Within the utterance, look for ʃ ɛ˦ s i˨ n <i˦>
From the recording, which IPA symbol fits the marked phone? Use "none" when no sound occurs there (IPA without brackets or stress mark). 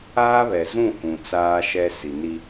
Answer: i˦